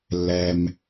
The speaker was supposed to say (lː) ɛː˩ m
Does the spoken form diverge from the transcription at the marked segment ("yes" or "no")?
no